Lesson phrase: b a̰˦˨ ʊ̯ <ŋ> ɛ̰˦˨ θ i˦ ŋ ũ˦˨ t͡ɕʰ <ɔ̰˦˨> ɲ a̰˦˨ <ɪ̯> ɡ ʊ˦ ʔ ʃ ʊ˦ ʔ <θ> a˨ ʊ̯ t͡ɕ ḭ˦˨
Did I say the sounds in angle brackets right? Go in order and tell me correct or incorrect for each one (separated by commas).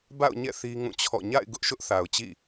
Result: incorrect, correct, correct, correct